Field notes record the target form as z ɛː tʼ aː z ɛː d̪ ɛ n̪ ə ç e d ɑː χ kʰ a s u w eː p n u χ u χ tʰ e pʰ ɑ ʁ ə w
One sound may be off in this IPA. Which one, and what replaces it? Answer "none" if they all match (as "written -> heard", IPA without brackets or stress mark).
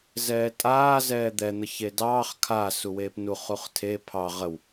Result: none